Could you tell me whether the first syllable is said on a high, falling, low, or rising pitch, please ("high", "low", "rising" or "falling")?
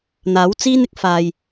rising